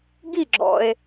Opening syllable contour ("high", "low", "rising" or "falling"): falling